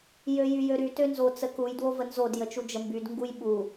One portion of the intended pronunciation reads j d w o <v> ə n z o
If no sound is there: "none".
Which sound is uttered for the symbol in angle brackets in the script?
v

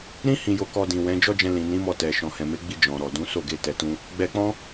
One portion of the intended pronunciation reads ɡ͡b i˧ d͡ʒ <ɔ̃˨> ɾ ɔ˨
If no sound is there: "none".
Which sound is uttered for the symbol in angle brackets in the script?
ɔ̃˨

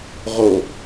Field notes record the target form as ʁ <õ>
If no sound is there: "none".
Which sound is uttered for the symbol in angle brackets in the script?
o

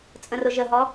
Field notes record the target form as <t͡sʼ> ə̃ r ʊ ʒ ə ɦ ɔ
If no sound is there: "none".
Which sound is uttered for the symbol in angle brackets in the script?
t͡sʼ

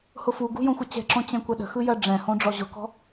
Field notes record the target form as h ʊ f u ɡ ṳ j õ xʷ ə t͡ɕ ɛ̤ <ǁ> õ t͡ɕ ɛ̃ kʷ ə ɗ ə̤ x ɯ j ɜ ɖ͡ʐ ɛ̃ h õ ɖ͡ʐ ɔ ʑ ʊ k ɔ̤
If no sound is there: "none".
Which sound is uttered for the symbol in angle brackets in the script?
ǁ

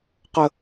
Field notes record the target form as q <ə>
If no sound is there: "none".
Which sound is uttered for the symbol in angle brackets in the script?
ə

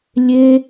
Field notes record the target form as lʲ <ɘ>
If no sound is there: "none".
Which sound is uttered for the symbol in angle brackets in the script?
e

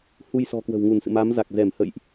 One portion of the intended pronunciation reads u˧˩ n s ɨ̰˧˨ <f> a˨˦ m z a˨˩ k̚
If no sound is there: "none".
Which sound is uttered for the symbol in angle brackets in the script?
m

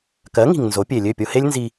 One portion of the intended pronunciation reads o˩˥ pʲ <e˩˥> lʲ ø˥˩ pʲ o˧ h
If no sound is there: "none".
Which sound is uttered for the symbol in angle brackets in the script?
e˩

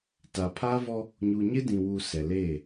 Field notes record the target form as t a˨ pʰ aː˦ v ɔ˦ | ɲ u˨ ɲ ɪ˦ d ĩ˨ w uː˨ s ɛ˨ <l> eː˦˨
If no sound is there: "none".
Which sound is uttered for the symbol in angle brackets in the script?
l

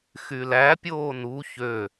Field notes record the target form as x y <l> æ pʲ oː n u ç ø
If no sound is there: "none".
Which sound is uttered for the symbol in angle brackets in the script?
l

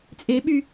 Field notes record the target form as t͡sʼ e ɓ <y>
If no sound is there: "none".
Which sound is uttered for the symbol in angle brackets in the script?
y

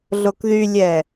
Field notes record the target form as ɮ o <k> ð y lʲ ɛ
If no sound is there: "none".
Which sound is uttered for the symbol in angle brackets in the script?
k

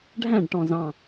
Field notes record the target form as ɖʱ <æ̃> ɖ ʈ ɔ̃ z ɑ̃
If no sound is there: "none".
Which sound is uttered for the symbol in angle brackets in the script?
æ̃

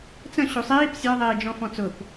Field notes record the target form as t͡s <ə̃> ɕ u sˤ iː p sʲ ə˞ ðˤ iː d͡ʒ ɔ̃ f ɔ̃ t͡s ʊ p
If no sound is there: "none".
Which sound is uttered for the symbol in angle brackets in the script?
ə̃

